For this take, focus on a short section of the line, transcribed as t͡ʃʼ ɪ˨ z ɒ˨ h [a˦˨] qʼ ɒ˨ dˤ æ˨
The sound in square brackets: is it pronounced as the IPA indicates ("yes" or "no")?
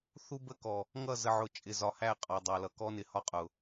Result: no